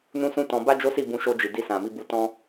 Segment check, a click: absent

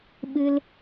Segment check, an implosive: present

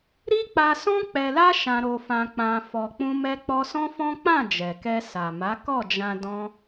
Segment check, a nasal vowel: present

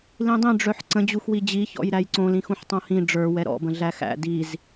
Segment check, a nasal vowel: present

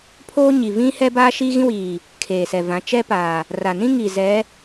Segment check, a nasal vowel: present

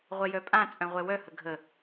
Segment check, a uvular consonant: present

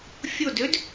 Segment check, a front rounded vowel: present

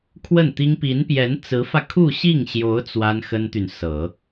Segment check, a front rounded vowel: present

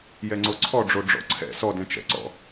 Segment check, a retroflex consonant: present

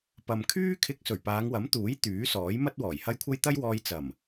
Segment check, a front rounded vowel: present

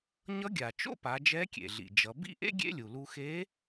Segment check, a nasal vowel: absent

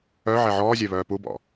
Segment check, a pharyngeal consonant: present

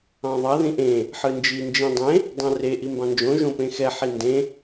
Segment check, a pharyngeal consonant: present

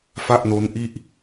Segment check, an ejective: absent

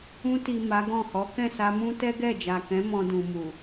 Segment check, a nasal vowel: present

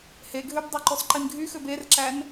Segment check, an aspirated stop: absent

